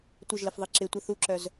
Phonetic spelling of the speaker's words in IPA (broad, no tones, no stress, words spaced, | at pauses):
tʷəʒləfðˤi ǁɪtʷə θuǁœz